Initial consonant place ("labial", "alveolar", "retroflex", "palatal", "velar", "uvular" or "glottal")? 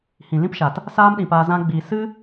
glottal